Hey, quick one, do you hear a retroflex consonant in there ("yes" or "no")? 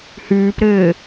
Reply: no